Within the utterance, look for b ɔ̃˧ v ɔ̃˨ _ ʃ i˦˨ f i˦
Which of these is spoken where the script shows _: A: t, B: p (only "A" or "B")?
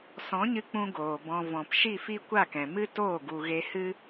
B